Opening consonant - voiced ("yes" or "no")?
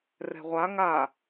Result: yes